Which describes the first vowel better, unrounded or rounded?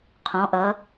rounded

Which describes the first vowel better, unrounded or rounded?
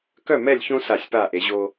rounded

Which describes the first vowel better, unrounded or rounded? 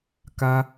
unrounded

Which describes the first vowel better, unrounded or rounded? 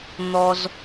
rounded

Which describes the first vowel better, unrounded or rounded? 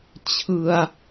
unrounded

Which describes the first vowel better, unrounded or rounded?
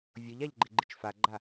rounded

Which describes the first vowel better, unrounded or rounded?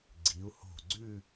unrounded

